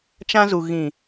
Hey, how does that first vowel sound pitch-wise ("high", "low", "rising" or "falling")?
high